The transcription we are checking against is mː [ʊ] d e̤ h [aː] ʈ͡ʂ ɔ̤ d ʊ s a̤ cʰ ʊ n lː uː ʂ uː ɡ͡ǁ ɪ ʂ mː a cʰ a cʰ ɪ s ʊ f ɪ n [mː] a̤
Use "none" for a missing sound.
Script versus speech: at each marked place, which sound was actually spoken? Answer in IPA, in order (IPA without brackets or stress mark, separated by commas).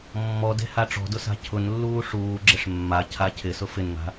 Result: ɔ, a, ŋ